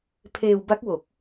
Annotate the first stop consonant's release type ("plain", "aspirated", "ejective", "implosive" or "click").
aspirated